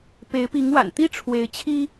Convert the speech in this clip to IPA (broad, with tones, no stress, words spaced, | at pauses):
pe˨˦ɪ̯pi˨˦ŋwa̰˨˩n t̪i˥˨ʈ͡ʂʰwe˨˦ɪ̯t͡ɕʰi˦